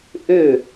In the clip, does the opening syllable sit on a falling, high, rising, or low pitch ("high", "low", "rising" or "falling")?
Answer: falling